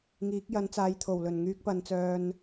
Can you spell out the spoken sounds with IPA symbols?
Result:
ŋ iː˨˥ k̚ j ɐ˨˥ n t͡s aː˨˧ j t̪ʰ o˨˩ w l ɵ˨˩ n ŋ yː˧ k̚ p ɐ˨˧ n t͡s œː˧ n

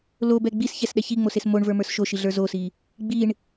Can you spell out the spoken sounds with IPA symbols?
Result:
l o b ɛ ɡ͡b i s ç ɛ s ɗ ɛ ç i ŋ͡m o s e s m o ɳ v ə˞ m ə˞ s ʃ o ʃ i ɮ ə˞ z o s i | ɡ͡b i ɳ

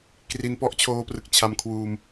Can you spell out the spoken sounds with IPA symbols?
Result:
k r i˧ n p ɔ˦˥ ʔ t͡ɕʰ oː˧ p r ɯ˨˩ k̚ t͡ɕʰ a˧ m kʰ w uː˧ m

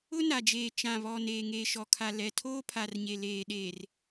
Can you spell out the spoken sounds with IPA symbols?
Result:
ʊ˦ n a˨ d͡ʒ eː˨ t͡ʃ ã˨ β ɔ˨ n eː˨ ŋ e˨ ʃ ɔ˨ kʰ a˨ l ɛ˨ tʰ oː˦ pʰ a˨ r ɲ e˨ l eː˨ ɗ eː˨ r

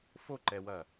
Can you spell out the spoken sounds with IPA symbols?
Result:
f o ǃ ɛ w ɐ

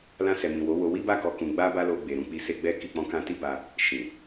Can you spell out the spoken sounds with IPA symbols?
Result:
l ã˧ s ɛ˨ m ĩ˨ w o˨˦ w o˧ w i˦ b a˦˨ k ɔ˧ k ũ˧ ɡ͡b a˦ b a˦ l o˧ ɡ͡b e˨ ɾ ũ˨˦ k͡p i˧ s e˦ ɡ͡b ɛ˦ k i˦˨ k͡p ɔ̃˧ k ã˧ t i˦ b a˧ | ʃ ĩ˨

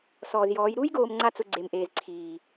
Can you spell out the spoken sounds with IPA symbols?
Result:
s ɔː˨ z j ɔː˨˦ j ɾ u˧ j ɡ oː˨ m ŋ͡ǀ a˦ t͡s ʊ˧ ɡ͡ǀ e˨ m ʔ eː˨ z ǀʰ iː˨

